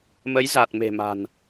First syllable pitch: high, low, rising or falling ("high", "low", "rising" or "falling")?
rising